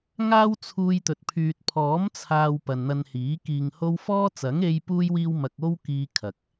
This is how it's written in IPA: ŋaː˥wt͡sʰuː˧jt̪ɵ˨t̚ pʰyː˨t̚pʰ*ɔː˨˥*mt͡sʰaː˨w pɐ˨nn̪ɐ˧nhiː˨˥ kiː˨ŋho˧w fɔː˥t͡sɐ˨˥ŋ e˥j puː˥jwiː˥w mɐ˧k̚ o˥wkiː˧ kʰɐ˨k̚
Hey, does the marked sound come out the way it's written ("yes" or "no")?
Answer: yes